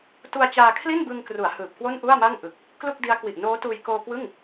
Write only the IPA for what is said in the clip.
t u˧ a̯ t͡ɕ aː˧ kʰ l i˥˩ n b ɯ˧ ŋ k r u˩˦ a̯ h ɯː˨˩ p̚ k w o˥˩ n ʔ u˥˩ a̯ m a˥˩ ŋ ʔ ɯ˨˩ k̚ | k l u˥˩ k̚ d i˦˥ a̯ k w i˨˩ ʔ n oː˦˥ t uː˧ j k oː˧ k w ɯ˥˩ ŋ

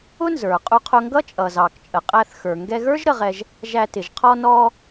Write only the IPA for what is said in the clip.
ʊ˥ n z ə˞˩ qʼ u˧ qʰ ʊ˧ ŋ ɡ ʌ˥ t͡ʃʼ ʌ˩ z ɑ˩ k t͡ʃʼ ə˩ qʼ æ˧ θ x ə˞˩ ŋ ɡ ɛ˧ ɣ ə˞˥ ʒ ɾ ə˧ ʁ ɛ˧ ʒ | ʒ æ˧ t ɪ˩ ʒ qʰ ɔ˧ n ɔ˧

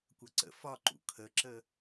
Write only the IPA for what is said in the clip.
kʷ ʌ ǀ ə̰ f ɒ ǃ ṵ kʰ ə ǁ ə

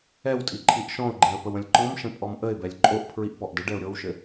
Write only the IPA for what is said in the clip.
ɛ w tʼ i ǃʰ i ʔ ʃ ɔ̃ ʊ̯ ɡ͡ǃ ẽ ə̯ p ə w ə̃ lʲ ǃ ɔ̃ m ʃ ə̃ pʼ ɔ m ʔ ə ɪ̯ b ɛ lʲ ǃʼ o ʔ pʰ ɹ i ʔ p ɔ ʔ d ə ɖ ɛ ʊ̯ ɾʲ o w ʃ ɘ

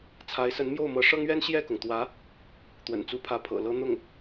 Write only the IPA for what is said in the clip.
t͡sʰ a˧˥ ɪ̯ s ə˧˥ n m j o˥˩ ʊ̯ m ɤ˧˥ ʂ ɤ˥ ŋ ɥ ɛ˥ n ɕ j ɛ˥˩ k ʊ˩ ŋ t̪ w ä˧˥ | t̪ w ə̰˨˩ n t͡s u˧˥ pʰ ä˧˥ pʰ ɤ̰˨˩ l ɤ˧˥ n̪ ʊ˥˩ ŋ

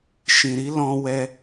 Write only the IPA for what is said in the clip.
ʃ ĩ˨ ɾ i˨˦ l ɔ̃˧ w ɛ˦

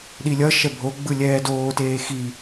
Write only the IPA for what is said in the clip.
ɗ i lʲ ʌ ʃ ɛ bʱ o ɡ͡b ɯ lʲ ɛː d oː t eː x i

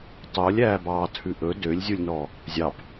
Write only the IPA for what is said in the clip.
tˤ o lʲ æː b ɑː tʰ ʉ ʔ ɵ d ø lʲ zʲ u lʲ n ɔ | zʲ ɑ p

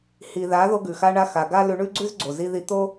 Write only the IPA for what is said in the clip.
h i˨ ð a˨˦ ð o˧ ɡ ʉ˨ x a˧ ɳ a˧ x a˨ ɡ a˦ l ʉ˧ ɳ ʉ˦ ɡ͡ǀ ʉ˦ z ɡ͡ǀ o˨ z i˧ ð i˧ t̪ o˦

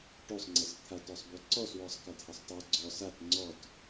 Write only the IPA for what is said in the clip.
ʈ o sˤ ŋ͡ǀ ɤ s t̪ʰ a t ɔ sˤ b u ǀ ɔ s w ɔ sˤ k a t h ɤ sˤ tˤ o ɡ͡ǀ ɔ s a t ŋ͡ǀ ɔ t

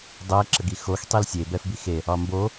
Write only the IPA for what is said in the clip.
dˤ ɛ ǁ ə ɡ i x o x tˤ i l sʲ e b ɛ f b i x e | ɒ m b o

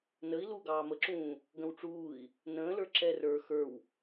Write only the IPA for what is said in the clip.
n ə i̯ l u ɡ ɑː m ə ǁ ũː | ɡ ə̃ w ʈ͡ʂ uː i̯ | n ə̃ː l ə˞ ǁ ɛ r ə˞ x ə˞ w

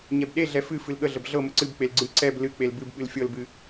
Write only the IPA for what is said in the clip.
ɲ ɛ b ɗ e ɮ ɛ f ɨ f ɨ l ɠ ə ɮ ə b ɮ ɤ m ə ǀ ɨ b k͡p e l ɡ͡ǀ ɨ ǀ ɛ b l ɨ k͡p e l b ɨ b ɓ ɨ l fʲ ɤ l b ɨ

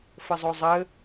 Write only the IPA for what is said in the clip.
f ə zˤ o zˤ ɘ

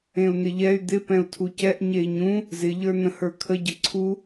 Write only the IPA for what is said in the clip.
ẽ u̯ n ɪ ʎ ɛ y̯ d̪ ɪ p ɛ̃ u̯ tʰ u c ɛ ʔ ɲ e i̯ ɲ ũ | z ɪ ʎ ə˞ n ə̃ h ə˞ kʰ ə ɟ ə ǀʰ u

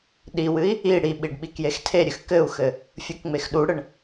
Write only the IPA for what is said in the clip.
ɗ i w ɨ i̯ | i ɽ i ɓ i ɖ ɓ i k j e x tʰ e ɾʲ ɨ x k ɘ u̯ x ɘ | fʲ u k ŋ͡m e x ɗ u ɽ ɘ ɳ

